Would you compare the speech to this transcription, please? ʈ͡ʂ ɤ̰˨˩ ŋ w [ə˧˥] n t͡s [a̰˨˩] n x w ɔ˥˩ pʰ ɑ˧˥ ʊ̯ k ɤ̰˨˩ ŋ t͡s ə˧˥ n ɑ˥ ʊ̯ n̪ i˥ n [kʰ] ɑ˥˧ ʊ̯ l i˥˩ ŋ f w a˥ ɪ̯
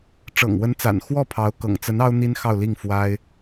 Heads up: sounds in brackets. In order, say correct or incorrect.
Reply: correct, correct, incorrect: x

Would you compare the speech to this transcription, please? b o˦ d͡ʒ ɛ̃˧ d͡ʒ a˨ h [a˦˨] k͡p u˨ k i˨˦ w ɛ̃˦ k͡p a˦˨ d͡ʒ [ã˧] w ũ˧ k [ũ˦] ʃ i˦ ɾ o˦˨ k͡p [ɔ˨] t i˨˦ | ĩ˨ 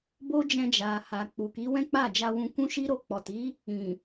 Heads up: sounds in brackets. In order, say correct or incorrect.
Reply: incorrect: a˨, incorrect: a˧, correct, correct

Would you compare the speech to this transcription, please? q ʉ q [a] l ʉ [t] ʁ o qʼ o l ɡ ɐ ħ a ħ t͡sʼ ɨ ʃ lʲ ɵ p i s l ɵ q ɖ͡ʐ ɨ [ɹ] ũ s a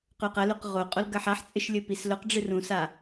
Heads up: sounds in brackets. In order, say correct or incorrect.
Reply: incorrect: ɐ, incorrect: q, incorrect: r

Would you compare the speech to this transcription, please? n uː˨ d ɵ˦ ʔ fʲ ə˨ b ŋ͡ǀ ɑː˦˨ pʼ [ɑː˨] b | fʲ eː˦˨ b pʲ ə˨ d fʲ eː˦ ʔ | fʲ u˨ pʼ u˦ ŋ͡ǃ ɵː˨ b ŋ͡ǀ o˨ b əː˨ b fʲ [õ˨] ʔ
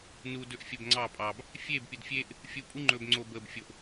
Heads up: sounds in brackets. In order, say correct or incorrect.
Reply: correct, incorrect: o˨

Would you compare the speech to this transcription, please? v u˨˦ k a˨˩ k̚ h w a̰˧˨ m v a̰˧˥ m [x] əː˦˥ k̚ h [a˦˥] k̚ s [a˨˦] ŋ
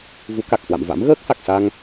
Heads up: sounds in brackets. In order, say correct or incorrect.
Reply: incorrect: ɣ, incorrect: a˨˩, incorrect: a˧

